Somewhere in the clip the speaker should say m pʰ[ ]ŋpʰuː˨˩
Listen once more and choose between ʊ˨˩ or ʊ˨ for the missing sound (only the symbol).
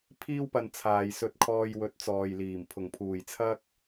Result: ʊ˨˩